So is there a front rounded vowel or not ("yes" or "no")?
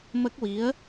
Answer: no